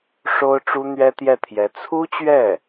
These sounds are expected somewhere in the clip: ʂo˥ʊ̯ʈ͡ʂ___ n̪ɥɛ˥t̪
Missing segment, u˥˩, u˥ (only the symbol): u˥